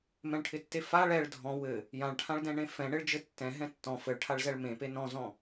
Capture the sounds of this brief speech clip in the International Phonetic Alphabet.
m ɛ̃ ɭ ʈʰ ɪ tː e f a ɭ ɛ ɭ dʱ ɔ̃ w ɘ | j ã ɭ ʈʰ ã ɭ d ɛ̃ ɳ ẽ f ɛ̃ ɳ ɪ ɭ d͡ʒ ɘ tː ɛ̃ ɦ ɛ̃ tː ɔ̃ f ɘ ɭ ʈʰ a ɭ z ɛ ɭ m ẽ p e n ɔ̃ z ɔ̃

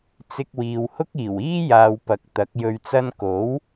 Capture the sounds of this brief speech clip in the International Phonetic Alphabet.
t͡s ɪ˧ k̚ w iː˨ w h ʊ˥ k̚ iː˨˩ w iː˥ j aː˨ w p ɐ˨˥ k̚ t̪ ɐ˨˥ k̚ j ɵ˧ ɥ t͡s ɐ˥ n k o˨˥ w

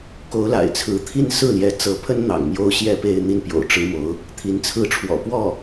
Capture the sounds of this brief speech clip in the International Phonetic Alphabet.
k o˧˥ ʊ̯ l a̰˨˩ ɪ̯ t͡sʰ ɹ̩˧˥ t̪ʰ i˥˧ n s ɹ̩˥˩ l j ɛ˧˥ t͡s ɤ˧˥ pʰ ə˥ n n̪ ɑ̰˨˩ ŋ m j o˥ ʊ̯ ɕ j ɛ˥˧ p e˥˧ ɪ̯ n̪ i˥˩ n p j o̰˨˩ ʊ̯ ʈ͡ʂ ɻ̩˥ m o˧˥ ʊ̯ | t̪ʰ i˧˥ n t͡sʰ ɹ̩˥˩ ʈ͡ʂʰ w ɔ̰˨˩ p w ɔ˥˩

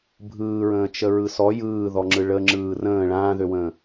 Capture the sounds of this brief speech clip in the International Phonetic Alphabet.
bʱ ɯː ɹ ə̃ː t͡ʃ ə ɹ ɯ s ɔ j ɯː ð ɔ ŋ͡ǁ ɯ ɭ ə ŋ͡ǁ ɯː r ə̃ː ɭ ãː ð ø w ə̃ː

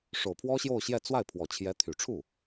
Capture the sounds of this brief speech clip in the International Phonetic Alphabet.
ʂ o˨˩ ʊ̯ pʰ w ɔ˥ ɕ j o˥˧ ʊ̯ ɕ j ɛ˥˧ t͡s w a˥˩ ɪ̯ pʰ w ɔ˨˩ t͡ɕʰ j ɛ˧˥ t̪ʰ y˨˩ ʈ͡ʂʰ u˥˩

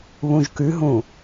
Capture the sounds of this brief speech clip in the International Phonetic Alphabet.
β ũ ʒ k ʉ ɦ ũ

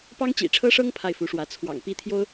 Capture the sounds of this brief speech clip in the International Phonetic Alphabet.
p ɑ˥ ŋ t͡ɕ ḭ˨˩ ʈ͡ʂʰ ɤ˥ ʂ ɤ˥ ŋ pʰ a˥˩ ɪ̯ f u˧˥ ʂ w ä˧˥ t͡sʰ w ɑ̰˨˩ ŋ p i˥ t̪ʰ j o˥ ʊ̯

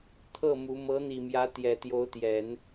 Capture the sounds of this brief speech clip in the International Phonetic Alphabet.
t̪ʰ ɤ˥˩ m u˧˥ m ɤ˧˥ n̪ i˨˩ m j ä˧˥ t̪ j ɛ˨˩ t̪ j o˧˥ ʊ̯ t̪ j ɛ˨˩˦ n

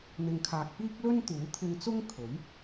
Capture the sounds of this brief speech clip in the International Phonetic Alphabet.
n̪ ɪ˨ ŋ kʰ aː˨ k̚ p iː˥ k̚ l ɵ˥ n t̪ uː˨˥ t̪ʰ ɪ˧ ŋ t͡s ʊ˥ ŋ kʰ ɵ˨˥ ɥ

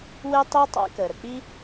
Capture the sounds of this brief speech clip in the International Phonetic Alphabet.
w e˥ tˤ i˥ tˤ a̰˥ k əː˩ ɾ ə˩ k͡p i˥

